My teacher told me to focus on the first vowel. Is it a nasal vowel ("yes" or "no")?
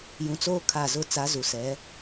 yes